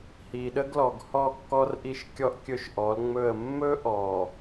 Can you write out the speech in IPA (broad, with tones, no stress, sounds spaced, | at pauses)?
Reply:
h i˨ ɗ ə˦ ɡ l ɔ˨ ɡ h ɔ˦˨ kː ɔ˦ r ʔ i˦ ʃ kʲ ɔ˦ ʔ kʲ ɵ˦ ʃ ʔ ɔ˨˦ l ŋ͡m ɵ˦˨ ə̯ mː ɵ˦ ʔ ɔ˨